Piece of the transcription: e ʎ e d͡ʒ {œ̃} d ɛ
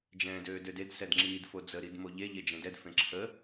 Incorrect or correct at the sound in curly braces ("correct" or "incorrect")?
incorrect